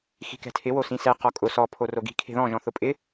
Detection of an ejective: present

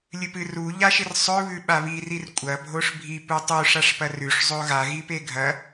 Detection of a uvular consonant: absent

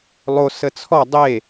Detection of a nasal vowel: absent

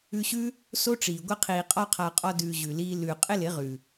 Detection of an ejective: present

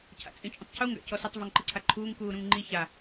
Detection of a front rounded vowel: absent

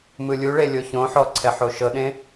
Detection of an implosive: present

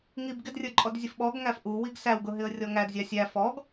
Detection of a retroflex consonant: absent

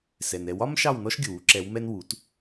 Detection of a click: present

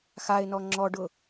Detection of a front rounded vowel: absent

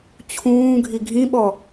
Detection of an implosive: present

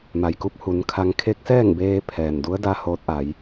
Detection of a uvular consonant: absent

